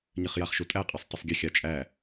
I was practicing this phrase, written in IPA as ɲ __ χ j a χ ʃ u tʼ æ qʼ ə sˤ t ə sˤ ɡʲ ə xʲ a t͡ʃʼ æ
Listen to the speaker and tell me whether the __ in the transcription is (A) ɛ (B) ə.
B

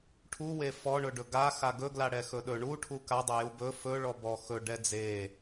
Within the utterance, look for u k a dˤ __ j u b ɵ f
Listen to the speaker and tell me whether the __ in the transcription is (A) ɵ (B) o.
A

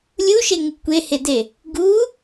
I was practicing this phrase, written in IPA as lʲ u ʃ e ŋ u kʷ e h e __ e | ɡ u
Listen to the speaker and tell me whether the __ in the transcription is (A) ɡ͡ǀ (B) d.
B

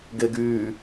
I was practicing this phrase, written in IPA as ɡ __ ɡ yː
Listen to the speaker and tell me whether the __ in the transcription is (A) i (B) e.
B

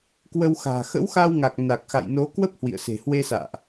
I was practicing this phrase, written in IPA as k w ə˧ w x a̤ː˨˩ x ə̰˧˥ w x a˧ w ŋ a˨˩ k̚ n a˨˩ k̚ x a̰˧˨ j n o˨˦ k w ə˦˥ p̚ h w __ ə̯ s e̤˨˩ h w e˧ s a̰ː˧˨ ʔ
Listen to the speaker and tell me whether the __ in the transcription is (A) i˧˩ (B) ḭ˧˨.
B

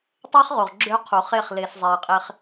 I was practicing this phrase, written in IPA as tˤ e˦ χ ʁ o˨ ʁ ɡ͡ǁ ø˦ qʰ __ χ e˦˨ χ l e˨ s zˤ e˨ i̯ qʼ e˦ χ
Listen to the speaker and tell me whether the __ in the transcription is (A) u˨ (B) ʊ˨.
A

